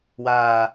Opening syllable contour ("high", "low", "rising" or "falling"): low